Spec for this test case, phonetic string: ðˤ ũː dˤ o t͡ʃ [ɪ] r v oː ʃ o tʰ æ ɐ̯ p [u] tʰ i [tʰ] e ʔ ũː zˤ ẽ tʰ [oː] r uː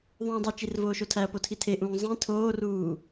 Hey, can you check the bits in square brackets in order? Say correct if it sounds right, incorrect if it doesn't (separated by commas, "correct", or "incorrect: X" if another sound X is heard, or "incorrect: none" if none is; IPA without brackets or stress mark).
incorrect: i, incorrect: o, correct, correct